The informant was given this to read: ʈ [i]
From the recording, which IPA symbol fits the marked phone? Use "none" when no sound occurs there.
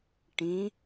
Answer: ĩ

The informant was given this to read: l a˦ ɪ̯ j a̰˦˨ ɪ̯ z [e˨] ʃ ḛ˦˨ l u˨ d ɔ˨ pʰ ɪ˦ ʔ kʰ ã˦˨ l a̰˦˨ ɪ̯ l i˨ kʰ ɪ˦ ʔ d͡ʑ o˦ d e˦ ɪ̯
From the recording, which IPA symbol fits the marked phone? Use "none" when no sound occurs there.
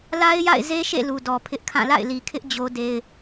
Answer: e˦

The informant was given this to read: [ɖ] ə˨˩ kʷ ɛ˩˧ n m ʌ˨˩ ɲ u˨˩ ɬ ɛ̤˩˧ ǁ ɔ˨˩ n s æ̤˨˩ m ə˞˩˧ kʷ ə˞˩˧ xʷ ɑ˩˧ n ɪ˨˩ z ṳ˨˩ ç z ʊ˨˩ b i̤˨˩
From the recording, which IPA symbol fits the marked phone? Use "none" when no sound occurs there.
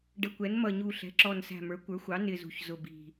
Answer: ɖ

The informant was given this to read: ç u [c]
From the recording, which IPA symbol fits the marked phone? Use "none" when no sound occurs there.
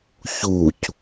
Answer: c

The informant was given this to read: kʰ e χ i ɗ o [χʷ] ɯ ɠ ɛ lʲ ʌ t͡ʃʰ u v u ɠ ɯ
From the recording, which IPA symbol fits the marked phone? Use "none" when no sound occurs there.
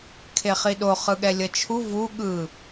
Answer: χ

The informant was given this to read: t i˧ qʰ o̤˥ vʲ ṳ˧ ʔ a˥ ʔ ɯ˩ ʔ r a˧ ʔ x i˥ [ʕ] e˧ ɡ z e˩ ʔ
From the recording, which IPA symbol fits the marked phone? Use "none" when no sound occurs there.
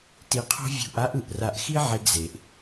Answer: ʕ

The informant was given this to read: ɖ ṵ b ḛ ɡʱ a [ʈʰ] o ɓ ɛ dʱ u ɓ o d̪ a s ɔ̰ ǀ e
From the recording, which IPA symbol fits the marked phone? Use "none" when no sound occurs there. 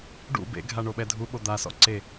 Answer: ɳ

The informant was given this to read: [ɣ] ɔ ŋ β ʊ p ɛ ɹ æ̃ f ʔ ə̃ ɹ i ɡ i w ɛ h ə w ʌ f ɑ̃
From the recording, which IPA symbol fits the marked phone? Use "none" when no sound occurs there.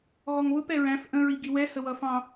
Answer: ɣ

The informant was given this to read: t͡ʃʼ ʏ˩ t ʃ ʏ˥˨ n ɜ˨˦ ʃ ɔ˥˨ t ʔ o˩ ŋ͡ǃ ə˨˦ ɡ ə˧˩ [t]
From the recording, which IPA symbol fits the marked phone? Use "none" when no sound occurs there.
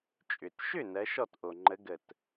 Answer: t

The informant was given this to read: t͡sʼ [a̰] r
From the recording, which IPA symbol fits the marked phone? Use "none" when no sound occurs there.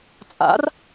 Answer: a̰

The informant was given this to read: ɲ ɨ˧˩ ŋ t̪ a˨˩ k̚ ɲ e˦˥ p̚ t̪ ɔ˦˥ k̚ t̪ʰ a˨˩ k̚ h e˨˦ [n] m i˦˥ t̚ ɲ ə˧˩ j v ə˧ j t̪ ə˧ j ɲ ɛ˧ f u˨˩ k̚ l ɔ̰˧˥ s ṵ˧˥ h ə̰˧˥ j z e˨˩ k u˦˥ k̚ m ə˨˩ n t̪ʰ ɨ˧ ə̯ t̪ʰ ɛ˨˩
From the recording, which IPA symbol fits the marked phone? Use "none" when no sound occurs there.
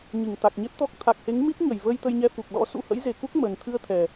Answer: ŋ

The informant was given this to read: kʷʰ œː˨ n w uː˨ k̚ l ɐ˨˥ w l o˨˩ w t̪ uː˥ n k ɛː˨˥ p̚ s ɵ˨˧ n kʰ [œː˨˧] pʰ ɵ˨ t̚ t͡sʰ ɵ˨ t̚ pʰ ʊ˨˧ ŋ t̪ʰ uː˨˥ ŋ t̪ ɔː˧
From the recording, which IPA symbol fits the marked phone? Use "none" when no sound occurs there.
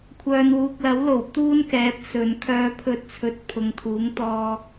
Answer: œː˨˧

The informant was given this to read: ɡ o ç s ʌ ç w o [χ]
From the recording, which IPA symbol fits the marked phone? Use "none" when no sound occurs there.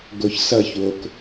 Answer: k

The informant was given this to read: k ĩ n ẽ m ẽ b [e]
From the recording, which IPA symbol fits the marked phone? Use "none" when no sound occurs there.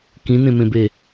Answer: e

